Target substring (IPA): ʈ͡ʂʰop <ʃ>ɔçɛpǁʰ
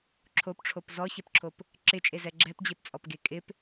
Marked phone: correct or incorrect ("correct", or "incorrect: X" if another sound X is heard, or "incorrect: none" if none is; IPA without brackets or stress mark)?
incorrect: z